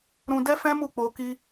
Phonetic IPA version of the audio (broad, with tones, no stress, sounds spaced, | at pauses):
ɾ ũ˧ d ɛ˦ f ɛ̃˦ m u˦˨ k͡p o˧ k i˦